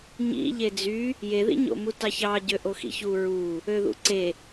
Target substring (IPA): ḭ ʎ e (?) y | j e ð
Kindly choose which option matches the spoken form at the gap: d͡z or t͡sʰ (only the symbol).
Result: d͡z